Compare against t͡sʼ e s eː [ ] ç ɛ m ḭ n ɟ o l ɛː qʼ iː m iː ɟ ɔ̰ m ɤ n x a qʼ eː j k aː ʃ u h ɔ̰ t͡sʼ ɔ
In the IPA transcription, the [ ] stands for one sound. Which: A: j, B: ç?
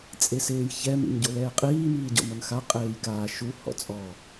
A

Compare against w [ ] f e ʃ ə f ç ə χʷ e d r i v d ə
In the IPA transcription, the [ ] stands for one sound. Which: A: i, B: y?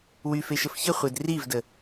B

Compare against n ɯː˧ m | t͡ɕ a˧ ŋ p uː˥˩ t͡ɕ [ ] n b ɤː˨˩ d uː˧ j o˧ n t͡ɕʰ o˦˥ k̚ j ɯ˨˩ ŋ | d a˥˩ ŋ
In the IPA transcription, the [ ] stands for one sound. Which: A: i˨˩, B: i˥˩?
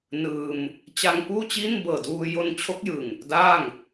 B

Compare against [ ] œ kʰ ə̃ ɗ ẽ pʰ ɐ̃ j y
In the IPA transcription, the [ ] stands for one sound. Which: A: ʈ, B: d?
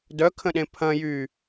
B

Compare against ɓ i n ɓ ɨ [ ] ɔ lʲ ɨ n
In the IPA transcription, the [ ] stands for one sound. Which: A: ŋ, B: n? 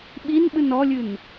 B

